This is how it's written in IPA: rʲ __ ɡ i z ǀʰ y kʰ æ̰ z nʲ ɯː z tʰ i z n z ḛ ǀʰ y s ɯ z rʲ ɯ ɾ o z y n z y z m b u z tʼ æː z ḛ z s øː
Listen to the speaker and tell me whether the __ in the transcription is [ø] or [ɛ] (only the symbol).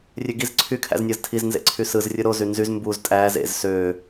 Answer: ø